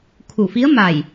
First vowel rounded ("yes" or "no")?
yes